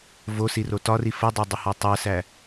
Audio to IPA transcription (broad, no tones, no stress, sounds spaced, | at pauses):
v o s i r o t ɒ r i f ə dˤ o dˤ ə h ɒ tˤ ɜ s æ